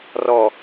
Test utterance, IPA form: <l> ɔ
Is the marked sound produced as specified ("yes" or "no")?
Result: no